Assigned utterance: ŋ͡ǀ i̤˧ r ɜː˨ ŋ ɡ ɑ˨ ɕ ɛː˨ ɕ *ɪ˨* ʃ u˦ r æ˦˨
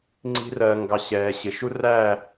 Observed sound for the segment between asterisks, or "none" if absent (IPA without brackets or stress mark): ɪ˨